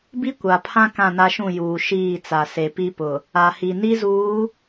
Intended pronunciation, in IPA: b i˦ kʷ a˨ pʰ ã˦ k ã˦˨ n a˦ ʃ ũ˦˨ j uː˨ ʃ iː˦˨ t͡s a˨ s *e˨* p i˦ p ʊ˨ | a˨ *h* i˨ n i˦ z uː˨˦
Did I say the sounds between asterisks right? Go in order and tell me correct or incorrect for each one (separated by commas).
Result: correct, correct